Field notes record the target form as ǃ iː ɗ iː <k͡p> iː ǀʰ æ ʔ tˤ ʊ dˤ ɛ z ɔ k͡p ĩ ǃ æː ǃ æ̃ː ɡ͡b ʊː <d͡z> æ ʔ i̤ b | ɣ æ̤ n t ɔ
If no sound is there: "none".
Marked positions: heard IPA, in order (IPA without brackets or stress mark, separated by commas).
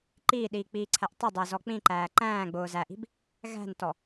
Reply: k͡p, z